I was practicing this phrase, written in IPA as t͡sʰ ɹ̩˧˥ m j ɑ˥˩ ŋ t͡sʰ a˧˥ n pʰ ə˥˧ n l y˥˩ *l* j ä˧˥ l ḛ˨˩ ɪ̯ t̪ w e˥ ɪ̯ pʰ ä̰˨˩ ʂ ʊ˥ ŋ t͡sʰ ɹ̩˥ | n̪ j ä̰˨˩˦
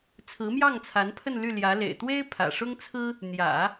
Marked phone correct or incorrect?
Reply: correct